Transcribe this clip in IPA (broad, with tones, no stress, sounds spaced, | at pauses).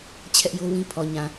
t͡ɕʰ ɛ˦ ʔ j o˦ w ĩ˦ pʰ ɔ˨ ɲ ã˨